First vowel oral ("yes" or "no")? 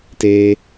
yes